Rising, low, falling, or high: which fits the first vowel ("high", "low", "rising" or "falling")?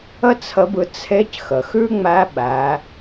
high